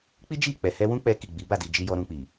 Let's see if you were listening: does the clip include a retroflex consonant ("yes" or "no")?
no